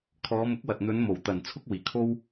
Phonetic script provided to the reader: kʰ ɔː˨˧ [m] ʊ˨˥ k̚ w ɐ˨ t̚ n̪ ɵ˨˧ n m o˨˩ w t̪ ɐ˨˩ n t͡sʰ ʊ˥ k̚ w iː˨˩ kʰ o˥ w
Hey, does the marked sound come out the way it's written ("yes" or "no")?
yes